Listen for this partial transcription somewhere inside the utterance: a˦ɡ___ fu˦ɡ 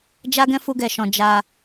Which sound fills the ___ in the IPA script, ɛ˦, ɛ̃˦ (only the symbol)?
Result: ɛ̃˦